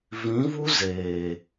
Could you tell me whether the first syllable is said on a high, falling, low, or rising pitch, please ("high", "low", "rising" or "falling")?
rising